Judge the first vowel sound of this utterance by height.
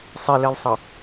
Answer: high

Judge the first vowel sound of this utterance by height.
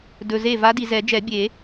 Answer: mid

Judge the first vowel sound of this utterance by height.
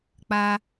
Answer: low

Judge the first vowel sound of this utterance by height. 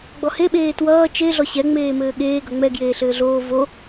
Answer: mid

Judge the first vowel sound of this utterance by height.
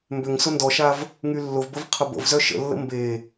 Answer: high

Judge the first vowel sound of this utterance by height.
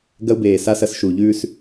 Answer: low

